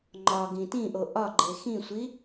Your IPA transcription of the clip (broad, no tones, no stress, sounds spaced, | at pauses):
ŋ͡ǃ ɒ ɡ ĩ t ĩ ʔ o ʔ ɒ ɡ͡ǃ e x ĩ sʷ i